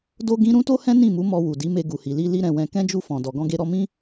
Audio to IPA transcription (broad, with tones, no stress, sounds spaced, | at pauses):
d o˦ ɡ ĩ˦ ɾ ũ˦ t o˦ h ɛ̃˦ n ĩ˦˨ m u˨˦ m ɔ˧ w u˨ d i˨˦ m e˧ ɡ u˨ h i˨ l i˧ l i˦ ɾ ɛ̃˧ w ɛ̃˧ k ɛ̃˦ d͡ʒ u˦˨ f ɔ̃˨ d ɔ˨ ɡ ɔ̃˧ ɡ e˧ ɾ ɔ˦ m ĩ˦